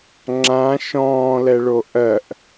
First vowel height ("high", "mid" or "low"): low